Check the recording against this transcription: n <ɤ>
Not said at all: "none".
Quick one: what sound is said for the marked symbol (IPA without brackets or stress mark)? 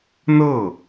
ɤ